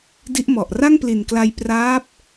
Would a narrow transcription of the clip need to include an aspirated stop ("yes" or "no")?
no